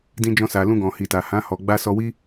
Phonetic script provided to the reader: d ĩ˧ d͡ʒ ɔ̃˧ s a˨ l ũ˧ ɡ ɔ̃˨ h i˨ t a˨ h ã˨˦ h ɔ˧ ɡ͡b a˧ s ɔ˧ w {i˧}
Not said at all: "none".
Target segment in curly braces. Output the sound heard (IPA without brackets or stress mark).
i˦